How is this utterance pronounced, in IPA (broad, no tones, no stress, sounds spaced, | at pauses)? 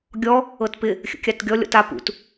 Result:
ɡʲ ɔ | ɤ t p ɪ | xʲ ə̰ kʲ a t ɡʲ ɔ lʲ ɔ̰ t a p ṵ t